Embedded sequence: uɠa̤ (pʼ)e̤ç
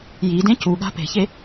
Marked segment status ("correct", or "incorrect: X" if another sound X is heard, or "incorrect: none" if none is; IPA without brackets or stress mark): incorrect: p